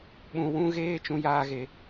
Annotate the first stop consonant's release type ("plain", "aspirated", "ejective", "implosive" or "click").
implosive